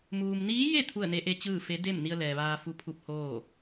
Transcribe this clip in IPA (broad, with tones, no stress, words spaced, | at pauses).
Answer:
muː˩mniː˧˥je˥˨ t̪ʰu˥˨ə̯ne˧˥ʔe˧˥t͡ɕɯː˥˨ fe˧˥ de˥˨mni˧ə̯ lɛː˩ʋaː˧fu˧˥pʰu˧p̚ hoː˥˨